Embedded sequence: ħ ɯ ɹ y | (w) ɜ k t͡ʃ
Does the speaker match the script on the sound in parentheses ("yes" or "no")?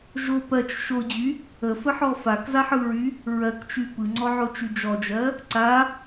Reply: no